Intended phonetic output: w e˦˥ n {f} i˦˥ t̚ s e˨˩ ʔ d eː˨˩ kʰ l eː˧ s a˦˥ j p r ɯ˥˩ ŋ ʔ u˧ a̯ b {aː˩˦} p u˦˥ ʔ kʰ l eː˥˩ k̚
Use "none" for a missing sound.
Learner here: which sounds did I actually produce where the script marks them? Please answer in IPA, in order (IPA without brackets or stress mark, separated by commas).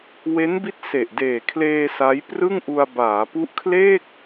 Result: b, aː˩˦